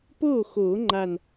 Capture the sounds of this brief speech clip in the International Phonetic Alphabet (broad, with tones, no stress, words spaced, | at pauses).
poː˥˩xoː˨˩˦ ŋ͡ǃa˧˩n